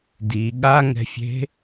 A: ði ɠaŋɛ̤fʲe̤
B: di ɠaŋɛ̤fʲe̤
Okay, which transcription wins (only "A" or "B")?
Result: B